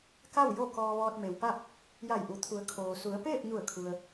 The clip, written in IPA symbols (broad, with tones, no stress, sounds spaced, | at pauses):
k a˥˨ w j o˥˨ k ɔː˧ ʋ ɔː˧ t̚ m e˩ w p a˥˨ p̚ | j a˧˩ j ʔ u˩ t̪ʰ u˩˧ ə̯ kʰ oː˩ s u˩˧ ə̯ p eː˥˨ p̚ ɲ u˧˩ ə̯ kʰ u˩ ə̯